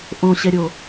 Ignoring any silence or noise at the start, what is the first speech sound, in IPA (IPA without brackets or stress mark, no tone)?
ʔ